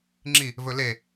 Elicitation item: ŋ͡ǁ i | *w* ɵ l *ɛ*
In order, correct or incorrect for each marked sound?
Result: incorrect, incorrect

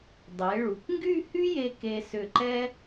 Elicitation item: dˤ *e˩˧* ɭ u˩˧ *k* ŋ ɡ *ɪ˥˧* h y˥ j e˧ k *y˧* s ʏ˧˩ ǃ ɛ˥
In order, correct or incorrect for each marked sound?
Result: correct, correct, incorrect, incorrect

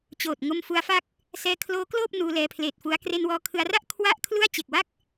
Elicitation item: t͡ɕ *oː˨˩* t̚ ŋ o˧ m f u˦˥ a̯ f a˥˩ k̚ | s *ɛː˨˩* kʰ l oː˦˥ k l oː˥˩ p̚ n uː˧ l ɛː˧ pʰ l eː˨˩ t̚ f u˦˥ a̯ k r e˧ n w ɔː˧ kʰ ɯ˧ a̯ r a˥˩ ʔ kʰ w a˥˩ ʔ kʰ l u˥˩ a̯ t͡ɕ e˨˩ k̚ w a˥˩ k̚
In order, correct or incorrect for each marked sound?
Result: correct, incorrect

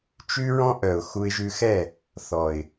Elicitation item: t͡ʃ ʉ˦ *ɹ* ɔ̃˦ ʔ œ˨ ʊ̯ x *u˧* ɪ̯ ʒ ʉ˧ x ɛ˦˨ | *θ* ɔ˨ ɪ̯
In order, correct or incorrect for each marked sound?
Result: correct, correct, correct

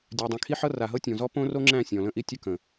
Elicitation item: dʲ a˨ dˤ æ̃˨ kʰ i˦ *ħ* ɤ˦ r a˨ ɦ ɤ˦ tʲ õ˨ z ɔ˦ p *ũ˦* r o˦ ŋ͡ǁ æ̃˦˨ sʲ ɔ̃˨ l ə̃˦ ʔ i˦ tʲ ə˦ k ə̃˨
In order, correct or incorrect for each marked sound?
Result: correct, incorrect

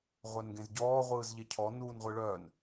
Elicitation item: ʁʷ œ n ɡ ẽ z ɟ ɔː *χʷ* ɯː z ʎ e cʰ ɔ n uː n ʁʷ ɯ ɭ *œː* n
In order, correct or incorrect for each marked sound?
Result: incorrect, correct

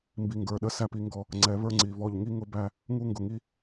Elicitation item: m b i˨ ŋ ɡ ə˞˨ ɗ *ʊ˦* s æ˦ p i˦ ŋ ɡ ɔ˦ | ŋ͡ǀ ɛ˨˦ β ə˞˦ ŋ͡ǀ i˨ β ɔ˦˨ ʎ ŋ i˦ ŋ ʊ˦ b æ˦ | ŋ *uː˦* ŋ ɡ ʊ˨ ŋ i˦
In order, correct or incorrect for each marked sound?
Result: incorrect, incorrect

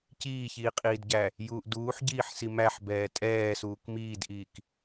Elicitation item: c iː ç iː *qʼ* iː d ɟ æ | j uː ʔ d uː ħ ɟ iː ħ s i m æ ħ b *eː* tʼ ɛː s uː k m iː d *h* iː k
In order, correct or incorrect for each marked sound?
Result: correct, incorrect, incorrect

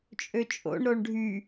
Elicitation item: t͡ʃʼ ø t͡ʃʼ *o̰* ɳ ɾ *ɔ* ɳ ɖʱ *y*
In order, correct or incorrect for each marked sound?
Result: correct, incorrect, correct

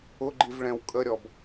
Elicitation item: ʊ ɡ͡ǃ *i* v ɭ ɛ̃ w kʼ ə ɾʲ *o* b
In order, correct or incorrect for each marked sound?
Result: correct, incorrect

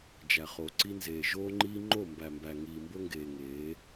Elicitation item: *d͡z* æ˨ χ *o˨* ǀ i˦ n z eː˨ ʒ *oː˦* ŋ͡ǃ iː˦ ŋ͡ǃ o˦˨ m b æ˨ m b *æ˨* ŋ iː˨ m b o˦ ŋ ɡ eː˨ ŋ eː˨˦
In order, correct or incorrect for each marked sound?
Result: incorrect, correct, correct, correct

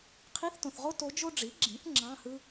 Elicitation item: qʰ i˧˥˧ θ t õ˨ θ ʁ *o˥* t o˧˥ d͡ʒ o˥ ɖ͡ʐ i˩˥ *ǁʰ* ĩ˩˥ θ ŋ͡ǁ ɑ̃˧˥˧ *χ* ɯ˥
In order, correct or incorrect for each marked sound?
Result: correct, incorrect, incorrect

